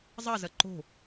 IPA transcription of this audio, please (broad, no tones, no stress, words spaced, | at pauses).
zˤɐzɐ ǃo̤